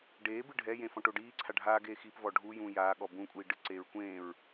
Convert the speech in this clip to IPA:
ɖ eː b ɨ ɖʱ ɛ j ẽ f ɔ̃ ʈ o ɖ iː ǀʰ a ɖʱ aː ɡ eː x i p v ɔ ɖʱ u j ũː j aː ɠ ɔ b ũ kʷʼ iː ɖ ɨ ǀ eː ɹ kʷ ẽː ɹ

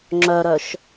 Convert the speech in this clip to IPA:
ŋ͡ǁ œ ɾ œ ʃ

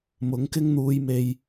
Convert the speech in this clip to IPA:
m ʊ˨˥ ŋ k ɪ˥ ŋ n̪ uː˧ j m e˧ j

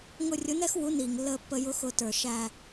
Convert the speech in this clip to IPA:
ŋ ʊ˦˨ rʲ ʊ˨˥ n ɛ˥ x w u˨˥ n iː˩ ŋ lː əː˦˨ pː ə˦˨ j ʊ˥ x ʊ˦˨ t ə˞˩ ʃ æ˦˨

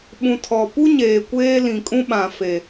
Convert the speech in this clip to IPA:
ɓ ũ˨ tʰ ɔ˨ p u˦ ɲ eː˨ kʷ eː˦ l ĩ˨ kʼ ũ˦ ɓ ã˨ f e˨

